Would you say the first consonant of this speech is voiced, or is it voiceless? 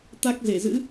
voiceless